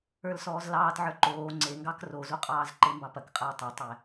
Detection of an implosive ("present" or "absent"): absent